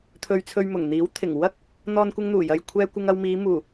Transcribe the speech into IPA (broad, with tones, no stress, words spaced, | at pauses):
t̪ʰɵ˧ɥt͡sʰɵ˧ɥmʊ˨˩ŋ n̪iː˨˥wt̪ʰɪ˨˩ŋ wɐ˥k̚ | n̪ɔː˧nkʷɪ˧ŋn̪uː˨˩jɐ˨j kʷʰɛː˧ kʷɪ˧ŋɐ˧wmiː˨˧ muː˨˩